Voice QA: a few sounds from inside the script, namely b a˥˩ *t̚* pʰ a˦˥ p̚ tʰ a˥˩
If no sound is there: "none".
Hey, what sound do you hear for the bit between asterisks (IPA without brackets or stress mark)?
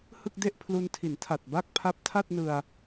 k̚